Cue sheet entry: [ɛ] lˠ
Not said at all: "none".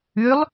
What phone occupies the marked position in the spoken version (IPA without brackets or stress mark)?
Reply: ʏ